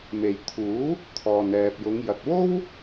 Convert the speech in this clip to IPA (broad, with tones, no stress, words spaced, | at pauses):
me˨j t̪ʰuː˨˥ | t̪ʰɔː˨nɛː˨p̚jʊ˨˧ŋ jɐ˨t̚wo˥w